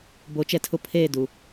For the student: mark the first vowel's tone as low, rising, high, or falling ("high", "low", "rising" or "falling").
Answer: rising